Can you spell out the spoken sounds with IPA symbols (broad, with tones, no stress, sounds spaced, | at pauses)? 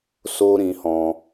s o˦ ɾ ĩ˧ h ɔ̃˧